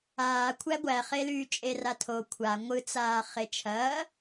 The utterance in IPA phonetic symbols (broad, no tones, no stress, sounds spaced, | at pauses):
aː kʷʰ æ ɡʷ æ χ e l yː t͡ʃʼ e r a tʰ o kʷʰ a ŋʷ ɯ t͡s aː χ e t͡ʃʰ ɐː